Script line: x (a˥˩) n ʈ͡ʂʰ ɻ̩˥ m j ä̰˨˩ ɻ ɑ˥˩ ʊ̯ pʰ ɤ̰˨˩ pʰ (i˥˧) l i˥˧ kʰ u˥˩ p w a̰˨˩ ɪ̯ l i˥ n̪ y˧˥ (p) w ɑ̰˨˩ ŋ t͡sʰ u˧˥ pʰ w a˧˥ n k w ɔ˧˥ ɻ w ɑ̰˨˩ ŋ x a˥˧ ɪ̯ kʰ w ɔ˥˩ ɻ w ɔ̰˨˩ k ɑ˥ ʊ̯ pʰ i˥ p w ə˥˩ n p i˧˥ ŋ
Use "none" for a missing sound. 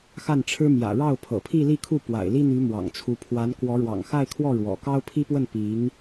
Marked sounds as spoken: a˥˩, i˥˧, m

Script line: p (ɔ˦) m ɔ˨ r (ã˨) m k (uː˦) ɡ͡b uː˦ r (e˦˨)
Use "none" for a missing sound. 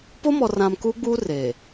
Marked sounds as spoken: o˦, ã˨, uː˦, e˨

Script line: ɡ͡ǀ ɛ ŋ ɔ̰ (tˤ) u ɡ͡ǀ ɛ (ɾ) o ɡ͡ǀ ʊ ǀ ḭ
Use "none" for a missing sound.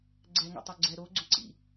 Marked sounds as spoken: tˤ, ɾ

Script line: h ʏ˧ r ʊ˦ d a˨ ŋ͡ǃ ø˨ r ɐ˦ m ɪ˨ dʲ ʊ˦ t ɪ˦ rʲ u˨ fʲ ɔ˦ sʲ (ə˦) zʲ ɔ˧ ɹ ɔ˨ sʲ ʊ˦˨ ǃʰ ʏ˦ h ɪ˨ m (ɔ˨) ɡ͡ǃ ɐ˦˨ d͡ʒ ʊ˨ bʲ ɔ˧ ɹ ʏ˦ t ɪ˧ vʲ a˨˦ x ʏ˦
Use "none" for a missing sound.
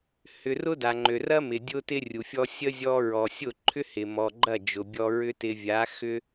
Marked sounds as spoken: ə˦, ɔ˨

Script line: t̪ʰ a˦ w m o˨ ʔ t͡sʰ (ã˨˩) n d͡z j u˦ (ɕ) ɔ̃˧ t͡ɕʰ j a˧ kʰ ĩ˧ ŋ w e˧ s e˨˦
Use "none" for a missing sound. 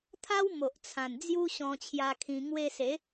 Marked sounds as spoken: ã˨˩, ɕ

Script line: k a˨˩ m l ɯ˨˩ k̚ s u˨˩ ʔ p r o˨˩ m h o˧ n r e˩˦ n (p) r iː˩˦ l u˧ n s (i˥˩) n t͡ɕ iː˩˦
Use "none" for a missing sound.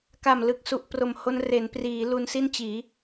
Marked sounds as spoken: p, i˥˩

